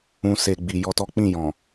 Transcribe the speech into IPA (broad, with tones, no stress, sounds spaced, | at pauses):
ũ˧ s e˨ ɡ͡b i˨ j ɔ˧ t ɔ˦ k͡p ĩ˦˨ j ɔ̃˨